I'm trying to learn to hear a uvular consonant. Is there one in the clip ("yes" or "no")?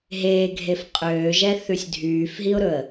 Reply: yes